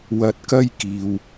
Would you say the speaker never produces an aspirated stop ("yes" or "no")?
yes